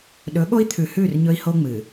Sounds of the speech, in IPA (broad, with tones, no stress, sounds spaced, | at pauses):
ɗ ɵ˨˦ ɠ o˦ i̯ t̪ʰ ʉ˨ h ʉ˦˨ r ɲ ɵ˦ i̯ h o˦ ŋ͡m ɨ˨